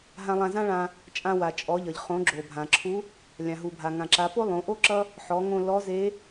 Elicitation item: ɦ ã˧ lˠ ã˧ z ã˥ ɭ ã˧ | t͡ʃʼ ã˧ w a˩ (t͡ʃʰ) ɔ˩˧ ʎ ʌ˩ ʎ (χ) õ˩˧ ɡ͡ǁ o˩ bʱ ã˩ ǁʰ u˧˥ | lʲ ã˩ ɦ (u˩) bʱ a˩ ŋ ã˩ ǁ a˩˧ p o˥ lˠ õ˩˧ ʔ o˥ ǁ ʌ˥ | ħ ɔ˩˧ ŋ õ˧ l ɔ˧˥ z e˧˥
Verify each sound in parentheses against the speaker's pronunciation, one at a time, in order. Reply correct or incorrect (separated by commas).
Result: incorrect, correct, correct